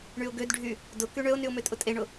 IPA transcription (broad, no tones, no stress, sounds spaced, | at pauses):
ɳ y ʊ̯ ɡ ø d ɖʱ y | d ʊ k y ɳ ø ʊ̯ n y ʊ̯ m ø tʼ ʊ tʼ e ɳ ʊ